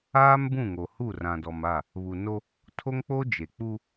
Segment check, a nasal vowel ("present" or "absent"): present